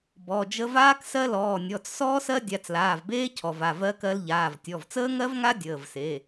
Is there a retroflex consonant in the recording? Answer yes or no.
no